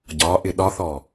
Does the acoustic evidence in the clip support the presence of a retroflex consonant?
no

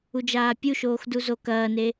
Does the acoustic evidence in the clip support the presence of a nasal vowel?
no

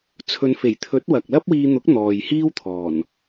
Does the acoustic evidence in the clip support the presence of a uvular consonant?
no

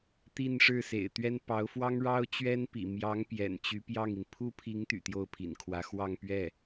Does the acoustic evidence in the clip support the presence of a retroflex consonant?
yes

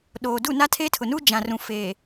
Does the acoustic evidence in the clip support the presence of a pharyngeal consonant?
no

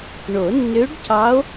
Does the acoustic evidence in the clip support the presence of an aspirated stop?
no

